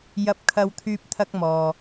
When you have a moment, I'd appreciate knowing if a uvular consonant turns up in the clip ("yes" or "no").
no